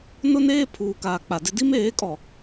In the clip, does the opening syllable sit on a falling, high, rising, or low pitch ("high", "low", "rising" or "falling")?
high